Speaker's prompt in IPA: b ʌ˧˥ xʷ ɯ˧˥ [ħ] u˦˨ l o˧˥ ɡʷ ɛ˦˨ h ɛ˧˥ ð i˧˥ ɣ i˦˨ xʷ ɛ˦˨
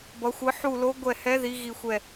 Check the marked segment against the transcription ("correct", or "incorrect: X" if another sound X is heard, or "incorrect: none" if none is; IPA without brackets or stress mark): correct